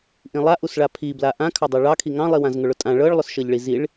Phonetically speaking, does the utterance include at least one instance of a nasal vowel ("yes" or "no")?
yes